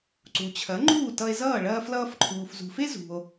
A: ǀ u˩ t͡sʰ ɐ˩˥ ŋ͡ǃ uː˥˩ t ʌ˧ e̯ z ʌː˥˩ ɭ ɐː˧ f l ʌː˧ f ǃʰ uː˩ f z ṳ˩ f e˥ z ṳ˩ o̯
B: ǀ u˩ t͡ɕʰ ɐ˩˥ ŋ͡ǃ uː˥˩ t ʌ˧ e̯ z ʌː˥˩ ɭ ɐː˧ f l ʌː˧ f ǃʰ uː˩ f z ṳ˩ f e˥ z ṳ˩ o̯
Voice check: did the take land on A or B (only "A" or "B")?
B